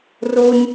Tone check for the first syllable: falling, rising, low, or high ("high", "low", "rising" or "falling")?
high